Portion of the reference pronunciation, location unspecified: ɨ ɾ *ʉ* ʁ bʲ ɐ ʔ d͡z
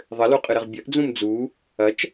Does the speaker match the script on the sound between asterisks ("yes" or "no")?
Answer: no